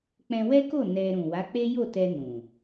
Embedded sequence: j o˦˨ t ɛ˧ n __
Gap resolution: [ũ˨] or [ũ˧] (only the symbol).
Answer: ũ˨